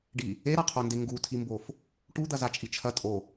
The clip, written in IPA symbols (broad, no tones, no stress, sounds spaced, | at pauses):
ɖ i | e ɾ a qʰ o n d e ŋ ɡ u tʰ i m b o f | ʈ u d̪ ɐ z a t͡ʃʼ i t͡ʃʰ ɐ tʼ o